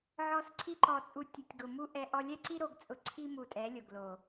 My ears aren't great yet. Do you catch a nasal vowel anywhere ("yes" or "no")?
no